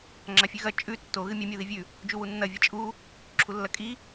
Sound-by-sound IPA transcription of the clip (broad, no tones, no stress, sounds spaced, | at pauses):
ŋ͡ǁ a fʲ ʉ ɣ ɐ t͡ʃʼ ʉ tː o ɣ ɨ mʲ ɐ mʲ o ð i vʲ ʉ | d͡ʒ u w u nː ɐ vʲ ɐ t͡ʃʼ u | ǁʰ u lː ɐ kʼ i